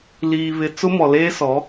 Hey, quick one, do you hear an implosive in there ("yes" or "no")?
no